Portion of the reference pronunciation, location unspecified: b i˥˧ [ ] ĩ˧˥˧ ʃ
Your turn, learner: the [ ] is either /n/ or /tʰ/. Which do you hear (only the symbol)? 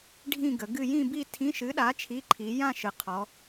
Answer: tʰ